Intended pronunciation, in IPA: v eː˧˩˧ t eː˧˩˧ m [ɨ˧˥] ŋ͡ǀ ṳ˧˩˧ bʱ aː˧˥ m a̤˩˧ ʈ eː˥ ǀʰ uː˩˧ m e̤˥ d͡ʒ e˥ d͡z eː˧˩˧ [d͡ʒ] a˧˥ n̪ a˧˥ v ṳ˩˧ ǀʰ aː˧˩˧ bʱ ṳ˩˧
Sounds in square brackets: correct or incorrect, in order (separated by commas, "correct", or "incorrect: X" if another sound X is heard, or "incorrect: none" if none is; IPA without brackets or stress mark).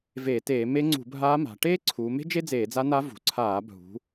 incorrect: e˧˥, incorrect: d͡z